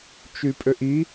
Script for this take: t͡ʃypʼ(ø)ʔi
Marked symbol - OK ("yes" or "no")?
yes